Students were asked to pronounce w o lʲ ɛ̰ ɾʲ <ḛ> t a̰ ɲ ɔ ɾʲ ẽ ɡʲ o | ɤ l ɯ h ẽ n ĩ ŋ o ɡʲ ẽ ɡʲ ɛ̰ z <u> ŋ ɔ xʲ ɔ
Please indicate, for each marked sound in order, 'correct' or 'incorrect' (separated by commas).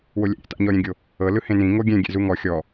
incorrect, correct